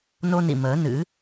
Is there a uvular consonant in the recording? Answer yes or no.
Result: no